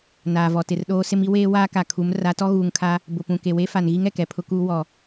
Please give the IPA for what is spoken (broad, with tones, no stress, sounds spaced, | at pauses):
n aː˨ v ɔ˨ t ɪ˨ r ɗ oː˦ s ɪ˦ m i˦ w eː˦ w aː˦ k a˨ kʰ u˨˦ m r a˨˦ t ɔ˦ ɣ uː˨ ŋ kʰ a˦ | b ʊ˨ p ũ˨ k e˨ w e˦ f a˨ n ɣ i˦ ŋ ɛ˨ k ɛ˨ pʰ ʊ˦ k uː˦ w ɔ˨